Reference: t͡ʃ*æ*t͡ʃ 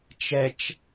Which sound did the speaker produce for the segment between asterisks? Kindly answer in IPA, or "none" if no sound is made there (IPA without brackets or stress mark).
ɛ